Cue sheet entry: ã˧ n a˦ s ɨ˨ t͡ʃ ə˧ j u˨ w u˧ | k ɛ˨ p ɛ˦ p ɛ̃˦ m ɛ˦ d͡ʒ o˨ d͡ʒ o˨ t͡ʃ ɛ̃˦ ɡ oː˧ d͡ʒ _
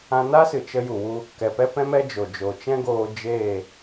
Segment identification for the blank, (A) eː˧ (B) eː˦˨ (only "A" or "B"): B